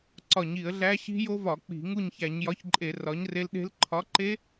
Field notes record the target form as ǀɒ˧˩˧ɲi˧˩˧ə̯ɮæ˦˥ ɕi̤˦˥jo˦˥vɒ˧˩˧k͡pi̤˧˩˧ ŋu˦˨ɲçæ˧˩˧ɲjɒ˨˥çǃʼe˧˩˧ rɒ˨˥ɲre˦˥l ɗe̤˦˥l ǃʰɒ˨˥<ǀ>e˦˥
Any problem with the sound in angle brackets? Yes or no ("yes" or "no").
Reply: yes